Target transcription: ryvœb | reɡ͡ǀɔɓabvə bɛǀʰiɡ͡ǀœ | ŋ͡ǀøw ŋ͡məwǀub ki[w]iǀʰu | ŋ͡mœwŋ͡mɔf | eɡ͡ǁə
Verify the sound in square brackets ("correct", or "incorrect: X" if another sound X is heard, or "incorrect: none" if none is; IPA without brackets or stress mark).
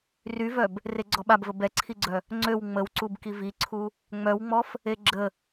incorrect: v